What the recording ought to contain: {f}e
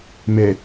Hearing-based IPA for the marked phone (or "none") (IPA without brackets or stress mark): m